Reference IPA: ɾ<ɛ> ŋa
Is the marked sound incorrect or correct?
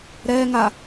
correct